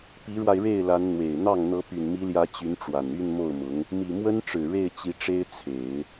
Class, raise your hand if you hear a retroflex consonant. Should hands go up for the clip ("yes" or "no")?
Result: yes